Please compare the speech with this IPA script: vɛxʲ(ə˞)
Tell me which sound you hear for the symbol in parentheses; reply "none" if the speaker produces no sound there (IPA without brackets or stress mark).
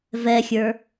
ə˞